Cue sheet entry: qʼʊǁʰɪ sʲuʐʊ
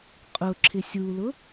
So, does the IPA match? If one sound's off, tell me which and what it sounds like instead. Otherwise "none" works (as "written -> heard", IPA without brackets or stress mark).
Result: ʐ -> l